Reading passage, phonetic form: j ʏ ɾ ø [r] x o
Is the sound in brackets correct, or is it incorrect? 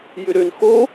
incorrect